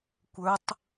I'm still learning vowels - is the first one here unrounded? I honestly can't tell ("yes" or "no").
yes